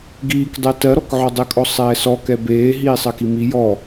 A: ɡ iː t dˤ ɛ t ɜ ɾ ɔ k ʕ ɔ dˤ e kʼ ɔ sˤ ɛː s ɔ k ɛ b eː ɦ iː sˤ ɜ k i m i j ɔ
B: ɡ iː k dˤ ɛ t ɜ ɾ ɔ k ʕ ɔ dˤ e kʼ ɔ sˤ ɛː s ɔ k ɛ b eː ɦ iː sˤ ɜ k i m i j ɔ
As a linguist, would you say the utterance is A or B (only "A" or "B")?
B